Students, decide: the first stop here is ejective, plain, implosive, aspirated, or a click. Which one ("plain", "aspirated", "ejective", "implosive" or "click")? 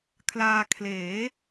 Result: aspirated